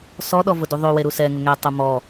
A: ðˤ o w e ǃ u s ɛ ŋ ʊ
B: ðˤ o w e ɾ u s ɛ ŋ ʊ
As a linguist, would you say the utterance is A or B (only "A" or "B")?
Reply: B